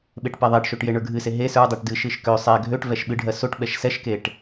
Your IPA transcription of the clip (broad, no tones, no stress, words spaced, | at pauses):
ɓeʈpɛðˤɛʈʃoʈ jeɳə˞ɡʱɨse ɦe sə˞ dˤɛʈdɨʃɨʃ kø sˤɛ ɡʱøʈ vɛʃɓɨɖʱɜ soʈ ɓɛʃsɛʃkeʈ